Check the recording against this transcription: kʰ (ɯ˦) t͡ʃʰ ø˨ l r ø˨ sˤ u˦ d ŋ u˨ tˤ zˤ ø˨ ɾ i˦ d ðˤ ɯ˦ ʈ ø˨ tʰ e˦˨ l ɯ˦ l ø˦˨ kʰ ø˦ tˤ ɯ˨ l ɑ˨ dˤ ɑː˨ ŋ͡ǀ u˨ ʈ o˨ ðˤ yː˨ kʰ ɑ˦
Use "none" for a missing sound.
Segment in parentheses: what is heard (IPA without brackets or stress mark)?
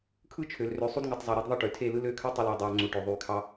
ɯ˦